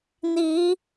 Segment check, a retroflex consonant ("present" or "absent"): absent